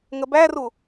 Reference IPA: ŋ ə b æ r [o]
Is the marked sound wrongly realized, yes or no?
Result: yes